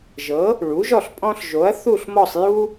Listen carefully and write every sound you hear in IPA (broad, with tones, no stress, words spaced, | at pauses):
ʒɤ˩˥ | ɭu˩˥ʒɔ˥˨ɬ pʼɔ̃˦ɬ ʒo˩˥ɐ̯ θu˥˨ɬmɔ˥˨sˤ ju˦